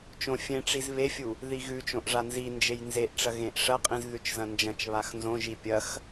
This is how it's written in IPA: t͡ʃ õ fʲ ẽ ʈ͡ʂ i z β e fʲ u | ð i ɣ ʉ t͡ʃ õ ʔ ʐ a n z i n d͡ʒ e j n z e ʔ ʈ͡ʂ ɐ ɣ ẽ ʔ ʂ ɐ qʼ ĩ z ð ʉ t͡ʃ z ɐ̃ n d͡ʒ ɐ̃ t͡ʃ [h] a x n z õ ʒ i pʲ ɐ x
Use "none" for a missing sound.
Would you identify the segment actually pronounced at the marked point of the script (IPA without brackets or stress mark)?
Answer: β